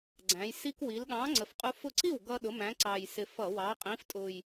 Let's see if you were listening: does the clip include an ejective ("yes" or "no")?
yes